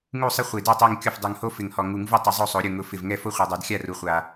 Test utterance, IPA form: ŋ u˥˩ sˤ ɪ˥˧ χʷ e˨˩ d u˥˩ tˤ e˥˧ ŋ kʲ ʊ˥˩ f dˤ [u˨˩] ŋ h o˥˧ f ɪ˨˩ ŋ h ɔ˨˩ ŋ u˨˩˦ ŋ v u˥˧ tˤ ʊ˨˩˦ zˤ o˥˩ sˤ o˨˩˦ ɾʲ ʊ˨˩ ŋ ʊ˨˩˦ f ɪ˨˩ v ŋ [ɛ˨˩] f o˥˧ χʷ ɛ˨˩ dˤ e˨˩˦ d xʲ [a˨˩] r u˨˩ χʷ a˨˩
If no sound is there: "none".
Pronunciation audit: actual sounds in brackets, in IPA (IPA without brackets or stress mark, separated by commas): u˨˩, ɛ˥˧, a˥˩